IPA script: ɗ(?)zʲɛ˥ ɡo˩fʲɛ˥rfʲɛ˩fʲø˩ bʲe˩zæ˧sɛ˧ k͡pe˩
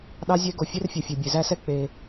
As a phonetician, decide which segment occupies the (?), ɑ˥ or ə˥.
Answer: ɑ˥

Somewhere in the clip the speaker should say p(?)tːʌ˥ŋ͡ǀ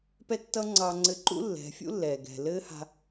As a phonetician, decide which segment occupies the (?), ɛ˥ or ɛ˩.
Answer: ɛ˥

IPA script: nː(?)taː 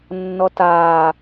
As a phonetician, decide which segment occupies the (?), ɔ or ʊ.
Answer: ɔ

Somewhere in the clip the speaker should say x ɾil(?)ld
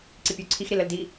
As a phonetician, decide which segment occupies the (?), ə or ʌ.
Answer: ə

